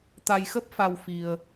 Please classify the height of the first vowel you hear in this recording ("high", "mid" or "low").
low